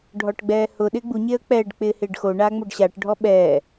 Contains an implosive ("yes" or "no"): yes